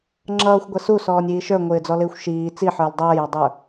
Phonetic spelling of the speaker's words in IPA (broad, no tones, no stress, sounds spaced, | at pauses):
ŋ͡ǁ ʌː xʷ ɡʷ ɛ s u s ɔː nʲ iː ʃ ə˞ ŋʷ ɪː d͡z ɔ l ɪː xʷ ʃ iː t͡s i ħ ə˞ l dˤ ʌː j ɑ dˤ ə˞